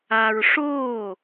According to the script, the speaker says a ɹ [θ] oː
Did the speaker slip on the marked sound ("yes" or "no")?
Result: yes